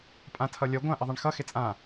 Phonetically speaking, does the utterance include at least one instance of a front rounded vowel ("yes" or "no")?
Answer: no